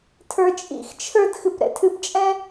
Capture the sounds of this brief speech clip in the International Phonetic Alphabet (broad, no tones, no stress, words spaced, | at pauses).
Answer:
tʰə˞t͡ʃʼḭxt͡ʃʰə˞d xɨpɾɛ̰tʰɨpt͡ʃʼɛ̃